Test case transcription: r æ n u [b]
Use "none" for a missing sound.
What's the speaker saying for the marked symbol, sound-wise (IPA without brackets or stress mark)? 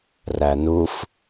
f